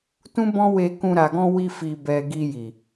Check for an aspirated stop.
absent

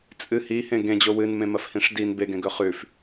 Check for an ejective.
present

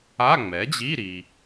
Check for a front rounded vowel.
absent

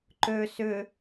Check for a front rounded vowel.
present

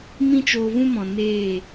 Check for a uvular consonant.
absent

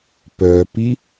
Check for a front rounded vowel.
present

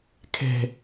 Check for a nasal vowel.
absent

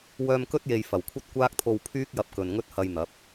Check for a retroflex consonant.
absent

